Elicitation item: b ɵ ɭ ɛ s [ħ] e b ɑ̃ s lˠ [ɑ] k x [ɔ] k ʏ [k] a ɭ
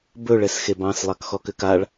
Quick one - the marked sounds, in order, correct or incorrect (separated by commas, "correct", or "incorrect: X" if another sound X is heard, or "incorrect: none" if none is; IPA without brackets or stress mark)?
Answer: incorrect: x, correct, correct, correct